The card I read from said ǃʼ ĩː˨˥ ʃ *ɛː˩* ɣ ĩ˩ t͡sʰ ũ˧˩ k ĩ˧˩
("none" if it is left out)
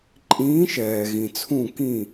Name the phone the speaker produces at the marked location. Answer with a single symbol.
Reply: ɛː˩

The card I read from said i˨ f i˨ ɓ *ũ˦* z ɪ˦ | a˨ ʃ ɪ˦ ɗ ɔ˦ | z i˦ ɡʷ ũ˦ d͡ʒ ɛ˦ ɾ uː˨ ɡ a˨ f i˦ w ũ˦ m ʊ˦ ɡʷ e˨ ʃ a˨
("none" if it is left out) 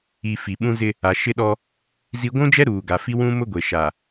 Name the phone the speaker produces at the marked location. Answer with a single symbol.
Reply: ũ˦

